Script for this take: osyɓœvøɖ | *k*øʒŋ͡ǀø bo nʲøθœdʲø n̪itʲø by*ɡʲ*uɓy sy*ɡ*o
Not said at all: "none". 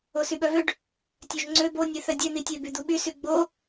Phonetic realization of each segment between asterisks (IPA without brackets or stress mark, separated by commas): tʲ, d̪, ɡ͡b